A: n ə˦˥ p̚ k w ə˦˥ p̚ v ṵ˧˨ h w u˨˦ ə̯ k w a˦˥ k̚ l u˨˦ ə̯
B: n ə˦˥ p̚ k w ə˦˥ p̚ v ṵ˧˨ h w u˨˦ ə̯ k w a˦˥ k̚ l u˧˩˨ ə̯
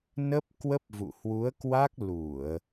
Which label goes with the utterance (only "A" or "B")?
B